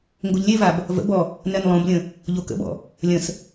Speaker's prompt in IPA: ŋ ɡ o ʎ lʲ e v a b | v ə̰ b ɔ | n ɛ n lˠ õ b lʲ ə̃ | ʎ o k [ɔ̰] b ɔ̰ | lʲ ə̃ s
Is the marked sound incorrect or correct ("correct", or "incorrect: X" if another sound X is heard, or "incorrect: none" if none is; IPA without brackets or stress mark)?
incorrect: ə̰